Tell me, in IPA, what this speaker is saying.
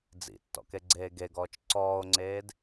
d͡zḭtːɔ̰ keɡ͡ǀeːɡeɡɔːt͡ʃ ǀɔːo̯ŋ͡ǀeːd

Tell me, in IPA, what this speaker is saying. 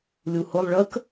lʲuhʊlˠ ɭək

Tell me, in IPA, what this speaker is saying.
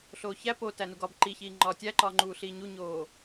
ɬoːçæ po tænuɡɒb ǃiçiːŋ͡ǃɒː tʲæǃɒːŋ͡ǃuːɬiː ɲuɲoː

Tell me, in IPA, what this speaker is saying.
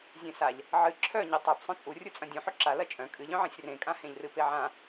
zʲẽsaʎ | ʕɨ ǁʰœɲe tˤœp sˤœ̃t͡sʼu rʲut͡sʼɐ̃dʲũħɵ ǁa lɐt͡ʃʼœ̃ kʼɨʎœ̃ʕẽsʲ rẽkʼãhẽʎrɨ peʕã

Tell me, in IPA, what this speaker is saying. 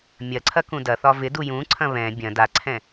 mʲɐǀʰɐ kũdɐθɒ vɪdu jũǀʰɐ̃ βɛ̃ bʲɐ̃ daǀʰɛ̃

